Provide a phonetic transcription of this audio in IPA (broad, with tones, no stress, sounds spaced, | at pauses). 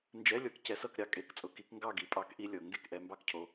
n d͡ʒ ɛ˧˥˧ lʲ ɤ˨˦ k c ɛ˨˦ s ɤ˦˨ k ɾʲ ɑ˦˨ kʼ e˧˥˧ k t͡sʼ ʊ˨˦ k i˨˩˦ k ŋ ɡ ɑ˦˨ ɡ i˨˩˦ pʼ ɑ˨˩˦ k ʔ i˦˨ lʲ ɤ˨˩˦ ŋ ɡ e˦˨ k ʔ ɛ˨˦ m b ɑ˦˨ k cʰ o˨˦